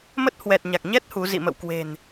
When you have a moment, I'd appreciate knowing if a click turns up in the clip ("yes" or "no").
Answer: no